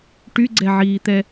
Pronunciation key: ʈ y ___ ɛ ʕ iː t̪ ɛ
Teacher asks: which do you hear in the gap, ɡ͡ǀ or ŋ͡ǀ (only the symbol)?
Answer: ɡ͡ǀ